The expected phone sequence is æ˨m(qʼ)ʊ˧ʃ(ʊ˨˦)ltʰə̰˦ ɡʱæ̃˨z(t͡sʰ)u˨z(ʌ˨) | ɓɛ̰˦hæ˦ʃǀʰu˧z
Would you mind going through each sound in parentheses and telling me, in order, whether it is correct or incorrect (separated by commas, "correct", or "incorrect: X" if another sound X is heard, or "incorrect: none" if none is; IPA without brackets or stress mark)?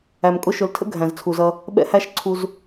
incorrect: kʼ, correct, correct, incorrect: ʌ˧